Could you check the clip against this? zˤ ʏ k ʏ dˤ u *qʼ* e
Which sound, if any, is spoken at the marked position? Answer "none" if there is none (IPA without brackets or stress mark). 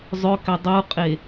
qʼ